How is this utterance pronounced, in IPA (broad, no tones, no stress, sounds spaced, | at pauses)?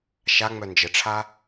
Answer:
ʃ a ŋ͡m œ n d͡ʒ ə ʈ͡ʂʰ a